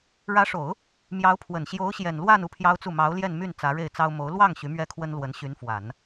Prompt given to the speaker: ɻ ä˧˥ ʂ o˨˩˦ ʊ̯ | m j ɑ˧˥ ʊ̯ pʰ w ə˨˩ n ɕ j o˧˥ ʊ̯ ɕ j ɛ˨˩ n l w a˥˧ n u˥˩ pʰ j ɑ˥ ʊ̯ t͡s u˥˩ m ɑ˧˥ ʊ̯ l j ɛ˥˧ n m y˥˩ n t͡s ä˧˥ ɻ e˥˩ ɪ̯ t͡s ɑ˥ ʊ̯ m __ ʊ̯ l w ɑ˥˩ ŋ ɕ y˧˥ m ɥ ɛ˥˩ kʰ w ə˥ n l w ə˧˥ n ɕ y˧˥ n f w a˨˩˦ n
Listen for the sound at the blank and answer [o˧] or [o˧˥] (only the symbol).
o˧˥